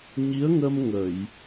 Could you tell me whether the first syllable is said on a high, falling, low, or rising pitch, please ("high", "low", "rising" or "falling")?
rising